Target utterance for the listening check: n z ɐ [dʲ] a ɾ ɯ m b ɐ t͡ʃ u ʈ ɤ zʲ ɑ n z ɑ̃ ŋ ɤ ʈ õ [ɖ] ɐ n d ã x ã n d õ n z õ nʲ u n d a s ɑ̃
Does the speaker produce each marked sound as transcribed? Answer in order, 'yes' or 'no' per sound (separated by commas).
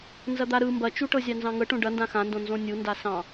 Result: no, yes